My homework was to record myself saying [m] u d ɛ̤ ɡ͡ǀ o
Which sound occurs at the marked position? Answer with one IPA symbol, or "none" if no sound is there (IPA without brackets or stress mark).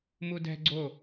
m